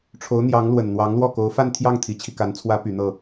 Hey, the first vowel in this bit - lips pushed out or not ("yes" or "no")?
yes